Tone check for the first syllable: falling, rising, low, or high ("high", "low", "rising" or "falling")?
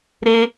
high